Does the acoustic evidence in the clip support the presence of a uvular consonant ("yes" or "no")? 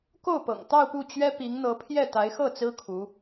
no